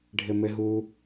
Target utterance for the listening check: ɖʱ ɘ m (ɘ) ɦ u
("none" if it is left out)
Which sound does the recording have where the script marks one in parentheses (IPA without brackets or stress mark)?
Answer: ɘ